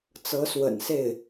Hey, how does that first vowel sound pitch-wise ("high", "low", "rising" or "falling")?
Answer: rising